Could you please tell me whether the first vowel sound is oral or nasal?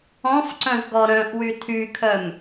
nasal